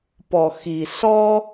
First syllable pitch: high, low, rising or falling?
low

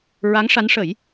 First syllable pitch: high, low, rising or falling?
rising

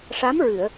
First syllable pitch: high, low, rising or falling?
rising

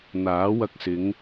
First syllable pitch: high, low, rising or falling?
rising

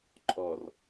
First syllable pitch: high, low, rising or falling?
low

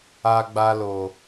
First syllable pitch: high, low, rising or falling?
high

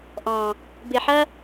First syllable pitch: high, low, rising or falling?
low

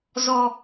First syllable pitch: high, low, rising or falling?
low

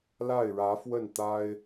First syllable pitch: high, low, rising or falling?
falling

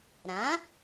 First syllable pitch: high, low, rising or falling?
rising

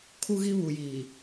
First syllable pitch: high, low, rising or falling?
high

